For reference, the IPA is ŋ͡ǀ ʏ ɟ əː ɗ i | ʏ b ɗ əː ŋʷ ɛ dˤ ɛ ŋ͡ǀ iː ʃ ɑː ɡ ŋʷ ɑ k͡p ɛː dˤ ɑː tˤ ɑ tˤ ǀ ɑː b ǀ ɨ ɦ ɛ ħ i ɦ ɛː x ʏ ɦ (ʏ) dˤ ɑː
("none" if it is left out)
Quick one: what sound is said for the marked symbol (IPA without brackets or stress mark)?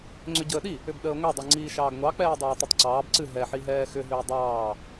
ʏː